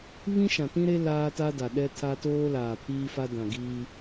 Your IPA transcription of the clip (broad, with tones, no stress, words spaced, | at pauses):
βĩ˦ʃã˨tĩ˦ɾe˦ laː˦ta˦da˨ ɗɛ˦ tʰa˦toː˦ laː˨pʰiː˦fa˦dã˨ ɡiː˦